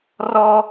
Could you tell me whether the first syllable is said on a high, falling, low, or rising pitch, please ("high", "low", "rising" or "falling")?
high